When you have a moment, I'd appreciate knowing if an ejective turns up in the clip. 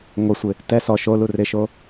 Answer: no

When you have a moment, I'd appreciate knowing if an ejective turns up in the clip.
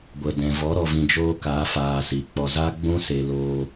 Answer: no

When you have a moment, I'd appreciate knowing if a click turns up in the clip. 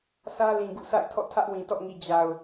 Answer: no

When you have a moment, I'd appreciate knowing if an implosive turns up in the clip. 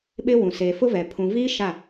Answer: yes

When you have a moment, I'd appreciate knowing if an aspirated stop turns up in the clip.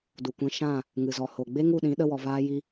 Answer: no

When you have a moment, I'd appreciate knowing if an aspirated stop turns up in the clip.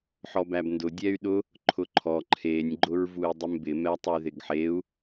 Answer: yes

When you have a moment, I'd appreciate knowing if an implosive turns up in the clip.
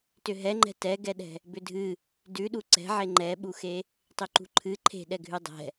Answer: yes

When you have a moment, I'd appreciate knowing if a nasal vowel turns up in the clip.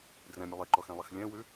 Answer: yes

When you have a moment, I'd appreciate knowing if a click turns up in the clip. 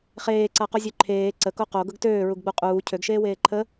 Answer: yes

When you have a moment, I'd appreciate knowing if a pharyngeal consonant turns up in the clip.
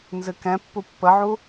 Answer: yes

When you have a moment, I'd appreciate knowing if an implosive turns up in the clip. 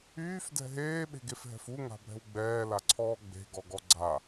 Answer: yes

